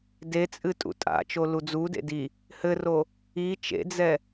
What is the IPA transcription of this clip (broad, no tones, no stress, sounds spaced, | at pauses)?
d e t͡sʼ ɨ tʼ ṵ tʼ a̰ t͡ʃ o l u d͡z u d ḛ d i | h ɘ r o | i t͡ʃ ḛ d͡z ɛ